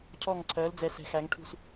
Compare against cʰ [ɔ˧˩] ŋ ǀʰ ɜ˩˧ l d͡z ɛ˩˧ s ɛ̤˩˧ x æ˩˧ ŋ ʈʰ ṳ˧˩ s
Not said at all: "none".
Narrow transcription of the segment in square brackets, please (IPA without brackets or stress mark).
ɔ˧˩